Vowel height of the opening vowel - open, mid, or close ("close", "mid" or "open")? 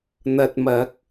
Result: open